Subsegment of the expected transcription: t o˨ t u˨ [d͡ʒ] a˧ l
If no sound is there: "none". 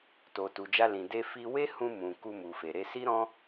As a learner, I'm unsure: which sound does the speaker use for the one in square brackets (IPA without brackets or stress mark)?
d͡ʒ